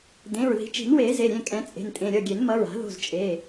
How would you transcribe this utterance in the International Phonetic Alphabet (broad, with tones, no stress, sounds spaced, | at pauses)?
d ẽ˩˧˩ ɹ ð i̤˨˩˦ t͡ʃ i̤˨˩˦ n w eː˨˩˦ z e˩˧˩ ɾʲ ẽ˩˧˩ kʼ ɛ̃˨˩˦ t͡sʼ e̤˩˧˩ n tʼ ẽ˩˧˩ ɾʲ ʌ˩˧˩ ɡʲ e˨˩˦ n m ʌ˩˧˩ ɹ a̤˨˩˦ ð o̤˩˧˩ z t͡ʃʼ e˩˧˩